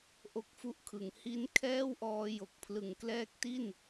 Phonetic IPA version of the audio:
ʔ o˦˥ k̚ f u˦˥ ʔ kʰ ɯ˩˦ ŋ h i˦˥ n kʰ ɛː˥˩ w ʔ ɔː˧ j o˨˩ k̚ pʰ l ɯ˨˩ ŋ k l ɛː˦˥ k̚ t i˥˩ n

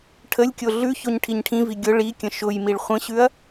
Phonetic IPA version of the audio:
ʈʰ ə lʲ kʲ o ɮ ʉ ç o ɲ ʈʰ i ɲ ʈʰ ĩ v i ɡʲ ʊ ɭ i kʲ ə̃ ʃ ʊ j m i ɭ χʷ ə̃ ɕ ʉ ɐ̯

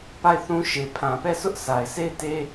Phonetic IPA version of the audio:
p a˦˨ ɪ̯ θ ũ˦ ʃ e˨ pʰ ã˨ p ɛ˦˨ sʰ ʊ˦ ʔ s a˨ ɪ̯ s e˦˨ ɪ̯ t e˦

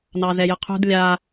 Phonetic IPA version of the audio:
n ɑ z ɛ j ə qʰ ṳ d lʲ a

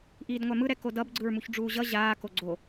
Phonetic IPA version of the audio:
ʔ iː d ŋʷ a m ɯ ɾ ɛ k o d ʌ b ɡ͡ǀ ɯ ɹ m u ç ɖ͡ʐ uː ʑ ʌ ʑ aː k o ɡ͡ǀ o

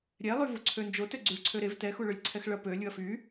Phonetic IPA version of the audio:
ɾʲ ɛ lˠ y v u ǀʰ ø n d͡ʒ o t ø ɡ͡ǀ y ɭ ǀʰ ø ɾ e v t ɛ x u ɭ ø lʲ ǀʰ ɛ x ɭ ɐ p ø lʲ u ɐ̯ f y

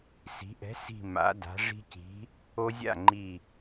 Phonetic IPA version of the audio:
s i̤˩˧ ʔ ɛ̤˨˥ s i̤˧˩ m a̰˩˧ d a̤˩˧ ʐ i̤˦ c i̤˨˥ | o˦ zʲ a̰˥˩ ŋ͡ǃ i˧˩

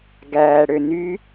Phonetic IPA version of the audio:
ɡ æː ɽ ø n y

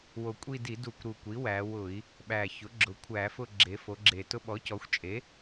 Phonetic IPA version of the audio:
w o˨˩ kʷʼ i˦˨ d i˧˩˧ d u˧˩˧ kʷ ɾ u˨˩ kʷ i˩˥ w æ˩˧ w ʊ˧˩˧ i̯ | ɓ æ˨˩ ç ʊ˩˥ ɡ͡ǁ ʊ˩˧ kʷʰ æ˧˩˧ f ʊ˦˨ ɡ͡ǁ e˩˧ f o˩˧ ɡ͡ǁ e˨˩ t ʊ˦ ɓ ɔ˩˥ c ɔ˩˧ xʷ t͡ʃʼ e˩˥

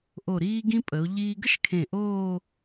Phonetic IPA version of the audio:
ʔ o˧˩ ɾ iː˥ ɡ ĩ˥ pʼ ə˩˧ o̯ ʎ iː˧ ɡ ə˥ ʃ kʰ ẽ˧˩ ʔ oː˥˧

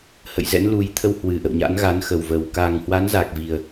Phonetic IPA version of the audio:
h ə̰˧˨ j z ɛ̰˧˥ n l u˨˦ j t̪ʰ ə˧ w h w ɨ˨˩ ʔ ə̰˧˨ w ɲ a̰˧˥ n ɣ a˨˦ n x ə˨˩ w v ə˨˩ w k a˨˩ ŋ h w a˨˦ n z a˨˩ k̚ v i˨˩ ə̯

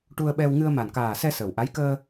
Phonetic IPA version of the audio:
ʈ u˧ ə̯ ɓ ɛ˧ w ŋ ɨ˧ ə̯ m a˨˩ n k aː˨˩ s ɛ˧ s ə˨˩ w ʔ a˧˥ j k əː˧

